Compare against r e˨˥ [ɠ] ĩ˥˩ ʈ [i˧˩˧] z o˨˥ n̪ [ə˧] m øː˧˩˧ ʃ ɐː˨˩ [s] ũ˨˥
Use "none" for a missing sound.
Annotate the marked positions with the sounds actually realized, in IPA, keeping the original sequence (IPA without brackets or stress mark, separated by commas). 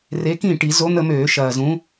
k, i˧˩˧, ə˧, z